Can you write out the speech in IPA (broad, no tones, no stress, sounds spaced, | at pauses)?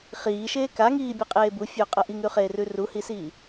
χ iː ʃ eː k a ŋ iː bʲ e qʼ eː b u fʲ ɵː qʼ ɐ ʔ i ŋ ʉ χ eː r ʉ r u h i s iː